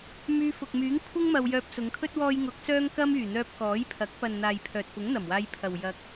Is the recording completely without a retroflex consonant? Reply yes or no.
yes